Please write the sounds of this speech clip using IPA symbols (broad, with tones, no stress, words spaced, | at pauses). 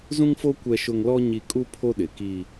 zũ˦ŋfo˦ kʷɛ˦ʃʊ˦ŋ lɔ˦ ɲi˦ kʼu˦ pʰo˦ɗɪ˨ki˦